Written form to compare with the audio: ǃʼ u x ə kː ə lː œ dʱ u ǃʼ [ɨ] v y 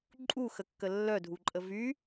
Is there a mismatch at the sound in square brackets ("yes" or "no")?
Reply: yes